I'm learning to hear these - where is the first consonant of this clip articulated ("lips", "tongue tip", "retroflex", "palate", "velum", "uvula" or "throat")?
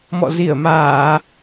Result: lips